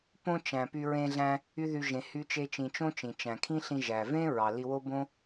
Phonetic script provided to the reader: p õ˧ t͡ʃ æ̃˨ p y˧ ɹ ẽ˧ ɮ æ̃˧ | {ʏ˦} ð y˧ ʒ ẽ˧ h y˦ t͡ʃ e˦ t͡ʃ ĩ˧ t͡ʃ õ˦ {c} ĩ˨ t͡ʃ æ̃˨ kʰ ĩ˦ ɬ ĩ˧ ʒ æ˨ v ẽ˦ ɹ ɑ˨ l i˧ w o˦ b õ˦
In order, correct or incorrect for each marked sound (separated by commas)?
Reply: incorrect, incorrect